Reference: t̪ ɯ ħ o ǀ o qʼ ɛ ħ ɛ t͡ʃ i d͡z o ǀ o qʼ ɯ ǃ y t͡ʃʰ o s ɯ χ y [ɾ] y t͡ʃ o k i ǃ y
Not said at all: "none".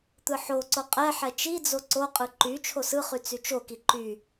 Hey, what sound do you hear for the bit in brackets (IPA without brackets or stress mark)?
t͡s